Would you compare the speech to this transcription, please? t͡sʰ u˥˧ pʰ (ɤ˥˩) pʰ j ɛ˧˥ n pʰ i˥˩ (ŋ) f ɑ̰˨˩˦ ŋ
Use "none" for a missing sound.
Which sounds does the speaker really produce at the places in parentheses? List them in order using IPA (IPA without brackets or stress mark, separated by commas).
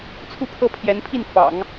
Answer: ɤ˥˩, n